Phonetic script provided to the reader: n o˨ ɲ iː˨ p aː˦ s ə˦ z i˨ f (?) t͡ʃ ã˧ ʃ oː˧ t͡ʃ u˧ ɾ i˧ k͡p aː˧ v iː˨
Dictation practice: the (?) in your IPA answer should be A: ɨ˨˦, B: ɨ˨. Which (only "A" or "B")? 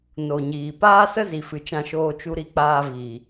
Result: B